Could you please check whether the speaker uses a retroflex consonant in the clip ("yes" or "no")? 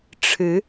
yes